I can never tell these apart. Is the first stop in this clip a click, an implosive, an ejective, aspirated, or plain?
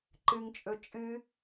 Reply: click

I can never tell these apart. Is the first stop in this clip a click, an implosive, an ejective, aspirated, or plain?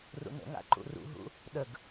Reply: click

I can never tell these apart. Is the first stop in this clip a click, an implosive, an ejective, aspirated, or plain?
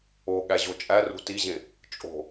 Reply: implosive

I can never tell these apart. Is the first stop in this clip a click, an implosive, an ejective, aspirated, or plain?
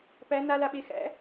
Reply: plain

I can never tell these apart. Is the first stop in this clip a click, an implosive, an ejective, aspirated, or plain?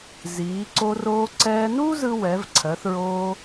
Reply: click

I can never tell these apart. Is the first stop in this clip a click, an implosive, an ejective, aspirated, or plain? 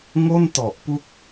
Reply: plain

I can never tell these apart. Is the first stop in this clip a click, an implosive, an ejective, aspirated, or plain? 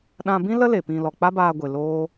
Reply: implosive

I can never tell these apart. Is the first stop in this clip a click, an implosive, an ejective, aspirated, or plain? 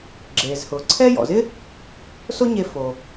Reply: click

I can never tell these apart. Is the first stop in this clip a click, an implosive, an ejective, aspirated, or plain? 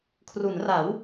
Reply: aspirated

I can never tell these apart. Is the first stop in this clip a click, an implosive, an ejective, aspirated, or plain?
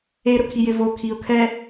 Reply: aspirated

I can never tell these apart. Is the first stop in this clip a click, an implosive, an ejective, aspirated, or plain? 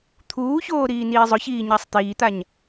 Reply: aspirated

